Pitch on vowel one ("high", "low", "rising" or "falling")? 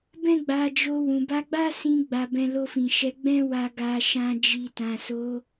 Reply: high